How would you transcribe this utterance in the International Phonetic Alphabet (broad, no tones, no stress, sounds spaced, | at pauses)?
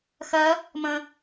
x ɜ | m ə̃